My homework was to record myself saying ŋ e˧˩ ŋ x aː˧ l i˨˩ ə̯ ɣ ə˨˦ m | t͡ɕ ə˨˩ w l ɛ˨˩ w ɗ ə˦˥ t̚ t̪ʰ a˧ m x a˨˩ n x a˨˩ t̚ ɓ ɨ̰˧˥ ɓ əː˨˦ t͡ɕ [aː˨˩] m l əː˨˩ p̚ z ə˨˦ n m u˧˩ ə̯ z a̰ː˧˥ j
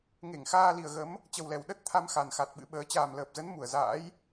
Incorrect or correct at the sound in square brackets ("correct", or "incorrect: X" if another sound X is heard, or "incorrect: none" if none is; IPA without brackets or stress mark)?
correct